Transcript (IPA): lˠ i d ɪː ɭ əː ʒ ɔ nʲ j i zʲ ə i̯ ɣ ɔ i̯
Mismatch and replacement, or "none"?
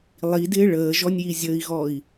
none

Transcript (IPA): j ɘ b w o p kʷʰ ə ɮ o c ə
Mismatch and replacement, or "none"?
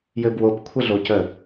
none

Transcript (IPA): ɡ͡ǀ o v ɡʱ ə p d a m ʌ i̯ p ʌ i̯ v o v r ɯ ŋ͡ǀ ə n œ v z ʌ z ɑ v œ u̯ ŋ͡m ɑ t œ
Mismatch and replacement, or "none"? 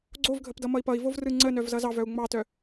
a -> ʌ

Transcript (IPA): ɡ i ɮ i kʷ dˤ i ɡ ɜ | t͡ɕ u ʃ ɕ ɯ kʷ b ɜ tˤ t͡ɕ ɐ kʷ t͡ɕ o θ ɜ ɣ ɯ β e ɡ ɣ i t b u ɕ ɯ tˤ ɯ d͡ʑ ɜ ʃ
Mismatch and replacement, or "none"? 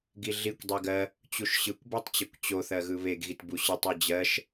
none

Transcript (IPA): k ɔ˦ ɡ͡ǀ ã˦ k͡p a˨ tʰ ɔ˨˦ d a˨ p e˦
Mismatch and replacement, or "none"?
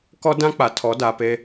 ɡ͡ǀ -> d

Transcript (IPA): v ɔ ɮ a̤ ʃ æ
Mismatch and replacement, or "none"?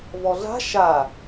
æ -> a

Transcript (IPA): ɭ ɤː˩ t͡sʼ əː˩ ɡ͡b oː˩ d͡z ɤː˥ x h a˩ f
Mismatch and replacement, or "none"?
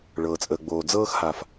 none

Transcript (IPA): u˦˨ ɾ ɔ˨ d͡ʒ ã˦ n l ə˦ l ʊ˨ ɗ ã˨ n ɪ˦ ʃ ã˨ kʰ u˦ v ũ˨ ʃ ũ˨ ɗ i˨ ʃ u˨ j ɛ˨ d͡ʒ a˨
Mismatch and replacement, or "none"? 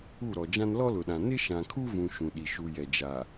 ə˦ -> ɔ˦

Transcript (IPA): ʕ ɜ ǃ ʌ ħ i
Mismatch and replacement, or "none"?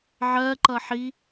none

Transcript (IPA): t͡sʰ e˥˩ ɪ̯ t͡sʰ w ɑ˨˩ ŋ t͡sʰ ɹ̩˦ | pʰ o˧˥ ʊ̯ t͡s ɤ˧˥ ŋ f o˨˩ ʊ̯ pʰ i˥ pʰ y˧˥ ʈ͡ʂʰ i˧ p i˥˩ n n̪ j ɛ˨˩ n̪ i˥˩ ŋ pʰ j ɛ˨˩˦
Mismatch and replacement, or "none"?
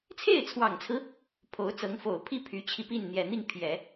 ʈ͡ʂʰ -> t͡ɕʰ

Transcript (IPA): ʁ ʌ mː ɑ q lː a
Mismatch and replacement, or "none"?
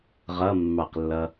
a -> ʌ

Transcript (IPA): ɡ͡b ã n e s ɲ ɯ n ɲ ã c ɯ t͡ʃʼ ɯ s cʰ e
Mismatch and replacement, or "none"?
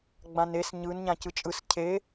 none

